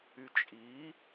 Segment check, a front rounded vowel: present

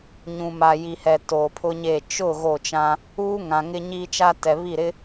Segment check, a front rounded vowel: absent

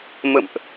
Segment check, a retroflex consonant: absent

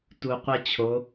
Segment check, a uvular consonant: present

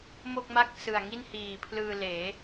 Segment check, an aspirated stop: present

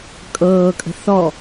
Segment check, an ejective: present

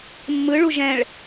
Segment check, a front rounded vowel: absent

